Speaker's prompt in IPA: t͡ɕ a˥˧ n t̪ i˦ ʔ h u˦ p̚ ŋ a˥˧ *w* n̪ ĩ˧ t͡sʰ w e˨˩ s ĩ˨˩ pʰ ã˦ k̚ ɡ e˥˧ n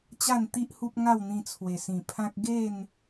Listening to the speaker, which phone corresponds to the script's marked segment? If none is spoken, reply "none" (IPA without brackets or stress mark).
w